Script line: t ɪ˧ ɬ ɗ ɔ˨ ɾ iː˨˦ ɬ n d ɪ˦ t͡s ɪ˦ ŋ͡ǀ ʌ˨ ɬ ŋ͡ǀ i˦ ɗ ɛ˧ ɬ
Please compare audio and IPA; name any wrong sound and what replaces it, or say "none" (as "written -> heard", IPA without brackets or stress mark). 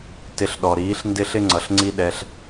t͡s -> ɬ